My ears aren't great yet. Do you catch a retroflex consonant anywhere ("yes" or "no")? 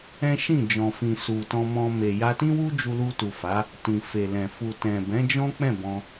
no